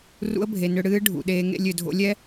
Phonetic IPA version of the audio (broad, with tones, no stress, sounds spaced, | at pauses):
r ṵ˧˥ ə̯ bʱ e˩ n ʏ˧ ɽ ɨː˧˥ ɖʱ ṵ˩ ɗ eː˩˧ ŋ ḛ˧ lʲ ʏ˩ dʱ o̰˧ lʲ ɛ˥